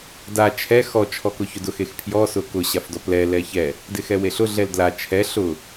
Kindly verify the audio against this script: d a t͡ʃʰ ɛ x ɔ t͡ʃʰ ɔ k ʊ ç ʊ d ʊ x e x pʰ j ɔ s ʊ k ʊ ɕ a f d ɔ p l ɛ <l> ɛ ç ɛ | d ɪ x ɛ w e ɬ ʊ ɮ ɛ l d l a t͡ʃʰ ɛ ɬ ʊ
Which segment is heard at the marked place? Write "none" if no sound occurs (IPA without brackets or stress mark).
l